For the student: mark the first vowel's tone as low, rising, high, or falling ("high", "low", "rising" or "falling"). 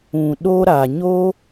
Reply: low